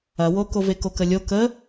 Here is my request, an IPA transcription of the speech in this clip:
ɐ w o k o v e k o k ə lʲ o k ə

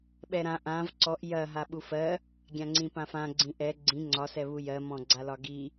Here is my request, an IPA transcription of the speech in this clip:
ɓ ɛ ɾ ã ʔ ã v ǀ ɔ ʔ j ɐ ɦ a ɓ u f ɜ | ɡʲ ã ŋ͡ǀ ĩ p ã f ã ɡ͡ǀ ĩ ʔ ɛ ɡ͡ǀ ĩ ŋ͡ǀ ɒ s ɛ β u j ɜ m ɔ̃ ɡ͡ǀ a l ɒ ɡ i

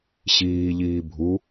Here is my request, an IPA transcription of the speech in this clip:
ɕ iː ʎ iː bʱ u

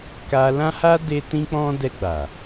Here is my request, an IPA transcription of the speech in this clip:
k a˧ l ã˦ h a˦ d e˦ t ĩ˦ k͡p ɔ̃˦ d ɛ˧ ɡ͡b a˨

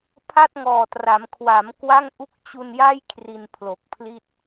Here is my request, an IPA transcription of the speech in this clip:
pʰ a˥˩ t̚ ŋ ɔː˨˩ t r a˩˦ m kʰ w a˩˦ m k w a˥˩ ŋ ʔ u˥˩ k̚ t͡ɕ u˧ n j a˥˩ j kʰ r i˧ n pʰ l o˨˩ k̚ pʰ l i˥˩ t̚

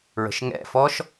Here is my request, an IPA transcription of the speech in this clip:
ɹ ə̤ ʃ ŋ ɛ̰ f ɔ ʃ

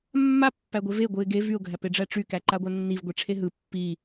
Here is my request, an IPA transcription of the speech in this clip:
mː a pː æ ɡʷ e v e ɡʷ ɯ ɪ̯ ɡ e v y ʊ̯ ɡʱ æ p e ɖ͡ʐ æ ʈ͡ʂ y k æ ǃ a ɡʷ a nː i v ɡʷ e ʈ͡ʂʰ e ɦ ɯ pː i

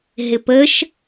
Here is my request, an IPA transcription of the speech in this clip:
ɦ ɪ p ə ʃ

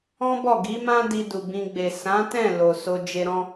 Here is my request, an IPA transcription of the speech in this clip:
ɔ̃˦ b ɔ˦˨ ɡ i˨˦ m ã˦ d i˧ d u˨ b ĩ˧ ɡ͡b e˨ s ã˨˦ t ɛ̃˦˨ l o˨ s o˧ d͡ʒ e˧ ɾ ɔ̃˦

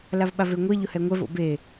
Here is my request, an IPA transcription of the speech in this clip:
l a v ɓ a v e ŋʷ ɛ ʎ ʊ h ɛ ŋʷ ɛ v o̰ b e

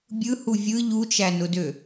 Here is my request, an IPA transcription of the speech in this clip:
bʲ ɯ h u vʲ ɯ ʎ u t͡ʃ æ n ʊ d ø

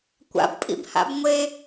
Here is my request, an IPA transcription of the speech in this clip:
kʷ a̰ b pʼ ḭ b h a̰ b ŋʷ e

